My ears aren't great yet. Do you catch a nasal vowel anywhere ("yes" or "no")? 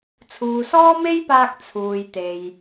no